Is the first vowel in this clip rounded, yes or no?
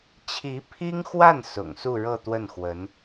no